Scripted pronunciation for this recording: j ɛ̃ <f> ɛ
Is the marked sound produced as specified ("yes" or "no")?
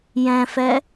yes